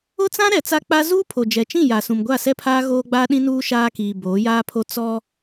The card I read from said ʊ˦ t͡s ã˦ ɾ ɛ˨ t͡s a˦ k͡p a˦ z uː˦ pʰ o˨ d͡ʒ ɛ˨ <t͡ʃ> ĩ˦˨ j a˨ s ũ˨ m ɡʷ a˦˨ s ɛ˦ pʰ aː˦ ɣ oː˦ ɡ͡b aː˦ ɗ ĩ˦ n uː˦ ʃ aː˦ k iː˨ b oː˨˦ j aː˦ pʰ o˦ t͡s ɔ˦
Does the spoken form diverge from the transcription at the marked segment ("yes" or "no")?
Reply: no